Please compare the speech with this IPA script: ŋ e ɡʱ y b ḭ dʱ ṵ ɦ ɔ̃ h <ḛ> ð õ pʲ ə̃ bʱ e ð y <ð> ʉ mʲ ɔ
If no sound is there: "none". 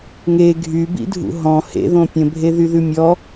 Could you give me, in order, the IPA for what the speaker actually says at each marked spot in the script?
ḛ, ð

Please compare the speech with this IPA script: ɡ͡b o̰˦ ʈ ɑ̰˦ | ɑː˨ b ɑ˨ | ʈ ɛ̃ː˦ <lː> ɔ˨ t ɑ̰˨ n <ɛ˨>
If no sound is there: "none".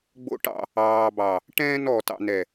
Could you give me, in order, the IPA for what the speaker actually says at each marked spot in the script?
n, ɛ˨

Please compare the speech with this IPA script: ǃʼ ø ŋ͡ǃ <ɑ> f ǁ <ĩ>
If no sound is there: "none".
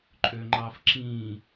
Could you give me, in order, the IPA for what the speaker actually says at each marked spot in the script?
ɑ, ĩ

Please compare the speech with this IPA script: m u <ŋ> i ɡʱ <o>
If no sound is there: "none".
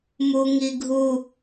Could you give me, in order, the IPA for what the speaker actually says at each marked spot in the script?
ŋ, u

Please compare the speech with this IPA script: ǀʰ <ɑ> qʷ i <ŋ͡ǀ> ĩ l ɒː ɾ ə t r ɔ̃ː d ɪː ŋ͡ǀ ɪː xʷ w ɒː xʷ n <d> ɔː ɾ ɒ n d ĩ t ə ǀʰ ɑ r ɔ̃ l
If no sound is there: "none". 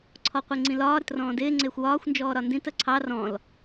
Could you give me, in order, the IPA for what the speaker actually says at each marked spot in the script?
ɔ, ŋ͡ǀ, d͡ʒ

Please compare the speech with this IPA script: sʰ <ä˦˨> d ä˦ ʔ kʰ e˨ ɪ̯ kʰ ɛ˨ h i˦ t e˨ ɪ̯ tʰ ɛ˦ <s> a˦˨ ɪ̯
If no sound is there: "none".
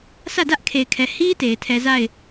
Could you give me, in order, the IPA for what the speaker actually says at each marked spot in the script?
ä˦˨, z

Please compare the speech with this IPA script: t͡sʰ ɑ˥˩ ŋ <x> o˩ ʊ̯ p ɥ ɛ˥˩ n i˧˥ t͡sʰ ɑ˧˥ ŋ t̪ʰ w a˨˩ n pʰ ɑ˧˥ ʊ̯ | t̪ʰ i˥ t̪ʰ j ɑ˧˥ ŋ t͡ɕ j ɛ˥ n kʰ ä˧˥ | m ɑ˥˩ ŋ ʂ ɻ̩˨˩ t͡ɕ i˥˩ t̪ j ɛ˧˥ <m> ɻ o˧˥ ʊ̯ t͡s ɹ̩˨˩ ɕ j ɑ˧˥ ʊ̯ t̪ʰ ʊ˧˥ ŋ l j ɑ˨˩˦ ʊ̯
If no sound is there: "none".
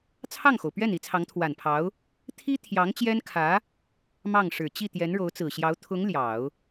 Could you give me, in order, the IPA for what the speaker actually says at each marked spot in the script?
x, n

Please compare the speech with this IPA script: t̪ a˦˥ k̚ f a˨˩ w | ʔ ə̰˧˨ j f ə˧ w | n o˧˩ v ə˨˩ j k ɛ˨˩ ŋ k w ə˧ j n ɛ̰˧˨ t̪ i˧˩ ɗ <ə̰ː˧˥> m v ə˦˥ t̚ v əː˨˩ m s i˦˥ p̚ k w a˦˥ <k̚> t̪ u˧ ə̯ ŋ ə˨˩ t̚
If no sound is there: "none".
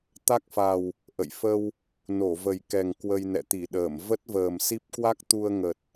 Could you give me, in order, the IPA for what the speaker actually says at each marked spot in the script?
əː˧˩, k̚

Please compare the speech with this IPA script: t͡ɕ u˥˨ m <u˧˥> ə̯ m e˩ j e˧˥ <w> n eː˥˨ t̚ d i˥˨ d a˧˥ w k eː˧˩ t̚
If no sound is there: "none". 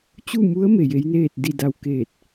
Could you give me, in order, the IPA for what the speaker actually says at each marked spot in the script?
u˧˥, j

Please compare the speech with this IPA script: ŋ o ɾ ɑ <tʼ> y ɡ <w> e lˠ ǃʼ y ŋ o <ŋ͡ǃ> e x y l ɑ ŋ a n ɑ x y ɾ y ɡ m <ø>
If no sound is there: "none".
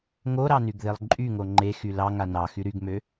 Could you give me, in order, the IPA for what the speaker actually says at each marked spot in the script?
n, ð, ŋ͡ǃ, ø

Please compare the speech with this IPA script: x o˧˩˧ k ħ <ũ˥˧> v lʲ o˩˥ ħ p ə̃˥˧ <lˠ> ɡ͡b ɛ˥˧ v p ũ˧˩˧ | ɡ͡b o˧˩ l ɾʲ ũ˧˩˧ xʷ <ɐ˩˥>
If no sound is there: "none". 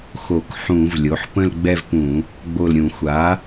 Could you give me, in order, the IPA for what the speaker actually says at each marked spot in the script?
ũ˧˩˧, l, a˩˥

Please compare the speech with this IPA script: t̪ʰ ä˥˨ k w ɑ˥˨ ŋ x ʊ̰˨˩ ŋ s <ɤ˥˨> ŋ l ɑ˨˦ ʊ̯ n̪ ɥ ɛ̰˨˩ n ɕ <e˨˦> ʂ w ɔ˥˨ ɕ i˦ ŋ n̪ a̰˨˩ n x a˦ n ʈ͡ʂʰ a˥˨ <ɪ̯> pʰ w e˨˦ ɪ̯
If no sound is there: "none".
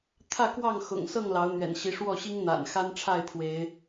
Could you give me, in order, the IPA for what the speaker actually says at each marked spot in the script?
ɤ˥˨, i˨˦, ɪ̯

